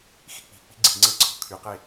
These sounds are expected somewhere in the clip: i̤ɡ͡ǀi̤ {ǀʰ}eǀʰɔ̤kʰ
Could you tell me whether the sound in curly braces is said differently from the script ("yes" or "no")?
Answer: yes